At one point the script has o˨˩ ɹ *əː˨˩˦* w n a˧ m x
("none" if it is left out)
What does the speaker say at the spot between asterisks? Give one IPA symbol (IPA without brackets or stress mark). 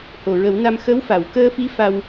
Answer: ə˨˩˦